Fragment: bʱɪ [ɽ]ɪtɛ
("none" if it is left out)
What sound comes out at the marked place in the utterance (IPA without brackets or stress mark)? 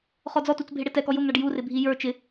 ɽ